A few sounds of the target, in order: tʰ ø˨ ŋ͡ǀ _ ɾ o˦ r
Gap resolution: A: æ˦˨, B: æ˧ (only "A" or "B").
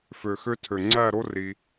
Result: A